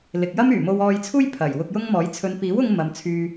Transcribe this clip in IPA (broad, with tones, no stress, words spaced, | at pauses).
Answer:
lɪ˨k̚jɐ˥myː˨˩ mo˧wɔː˧jt͡sʰuː˥j pʰɐ˨˩j wʊ˧k̚jʊ˥ŋmɔː˨˥j t͡sʰɵ˨˧n piː˨˥wʊ˧ŋ mɐ˨˧mt͡sʰyː˧